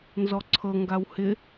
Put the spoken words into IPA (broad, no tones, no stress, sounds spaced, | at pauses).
n z ɔ ǀʰ ɤ ŋ ɡ a w h ɪ